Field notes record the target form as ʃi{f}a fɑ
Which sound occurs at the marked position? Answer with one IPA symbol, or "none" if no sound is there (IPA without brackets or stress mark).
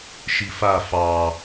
f